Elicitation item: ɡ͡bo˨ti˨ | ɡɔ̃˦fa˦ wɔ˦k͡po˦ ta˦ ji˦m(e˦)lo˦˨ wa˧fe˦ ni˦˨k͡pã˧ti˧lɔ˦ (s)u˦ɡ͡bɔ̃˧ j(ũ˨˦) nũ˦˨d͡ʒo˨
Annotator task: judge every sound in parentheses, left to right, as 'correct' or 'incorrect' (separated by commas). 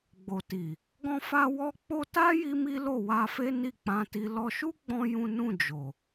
incorrect, incorrect, incorrect